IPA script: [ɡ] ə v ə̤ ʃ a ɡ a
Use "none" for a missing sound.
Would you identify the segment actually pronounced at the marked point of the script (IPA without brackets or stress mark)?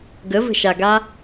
ɡ